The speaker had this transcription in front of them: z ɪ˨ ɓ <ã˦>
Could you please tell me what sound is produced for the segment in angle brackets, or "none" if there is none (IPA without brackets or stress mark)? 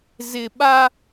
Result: a˦